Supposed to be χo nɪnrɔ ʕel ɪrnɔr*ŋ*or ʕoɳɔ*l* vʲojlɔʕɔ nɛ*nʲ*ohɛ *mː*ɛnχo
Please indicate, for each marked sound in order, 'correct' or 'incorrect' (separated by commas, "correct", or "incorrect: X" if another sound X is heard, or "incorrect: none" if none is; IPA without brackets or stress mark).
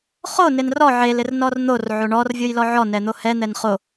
incorrect: n̪, incorrect: r, incorrect: n̪, incorrect: n̪